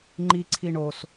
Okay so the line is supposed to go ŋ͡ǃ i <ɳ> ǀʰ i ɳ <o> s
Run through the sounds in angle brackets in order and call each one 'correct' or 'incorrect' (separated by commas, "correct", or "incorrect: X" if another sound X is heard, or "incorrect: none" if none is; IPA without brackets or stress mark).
incorrect: none, correct